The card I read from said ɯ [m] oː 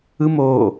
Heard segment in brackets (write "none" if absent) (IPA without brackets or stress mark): m